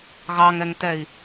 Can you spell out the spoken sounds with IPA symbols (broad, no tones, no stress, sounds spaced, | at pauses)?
ɣ ɑ ŋ ɛ ŋ t̪ ɛ i̯